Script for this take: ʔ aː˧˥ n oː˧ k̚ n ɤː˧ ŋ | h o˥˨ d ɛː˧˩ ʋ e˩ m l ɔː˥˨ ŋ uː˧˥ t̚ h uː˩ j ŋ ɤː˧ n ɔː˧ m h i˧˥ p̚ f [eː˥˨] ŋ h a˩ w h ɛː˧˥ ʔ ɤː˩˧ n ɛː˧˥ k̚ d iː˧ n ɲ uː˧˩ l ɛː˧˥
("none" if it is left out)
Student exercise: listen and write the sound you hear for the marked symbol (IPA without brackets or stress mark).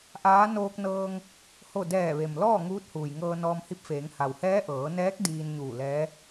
eː˩˧